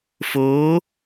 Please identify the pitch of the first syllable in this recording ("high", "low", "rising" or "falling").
rising